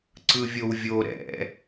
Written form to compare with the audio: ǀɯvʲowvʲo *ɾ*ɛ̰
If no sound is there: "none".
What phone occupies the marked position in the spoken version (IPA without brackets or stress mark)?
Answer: ɾ